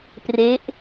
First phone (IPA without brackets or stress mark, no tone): p